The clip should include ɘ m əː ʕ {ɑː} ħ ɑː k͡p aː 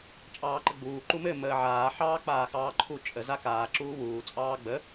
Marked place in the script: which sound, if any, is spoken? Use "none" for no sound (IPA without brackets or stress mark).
aː